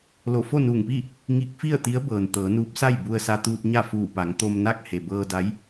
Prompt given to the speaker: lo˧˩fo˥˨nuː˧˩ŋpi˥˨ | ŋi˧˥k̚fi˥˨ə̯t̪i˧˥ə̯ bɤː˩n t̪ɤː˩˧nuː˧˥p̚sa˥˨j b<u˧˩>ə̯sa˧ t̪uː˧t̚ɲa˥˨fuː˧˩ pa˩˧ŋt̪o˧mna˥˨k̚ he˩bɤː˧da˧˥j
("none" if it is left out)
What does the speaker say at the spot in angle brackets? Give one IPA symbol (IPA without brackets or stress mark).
u˧